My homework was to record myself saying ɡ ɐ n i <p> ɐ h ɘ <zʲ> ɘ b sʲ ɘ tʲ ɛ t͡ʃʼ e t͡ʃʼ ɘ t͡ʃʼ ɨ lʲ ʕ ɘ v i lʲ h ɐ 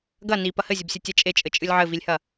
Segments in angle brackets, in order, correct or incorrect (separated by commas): correct, correct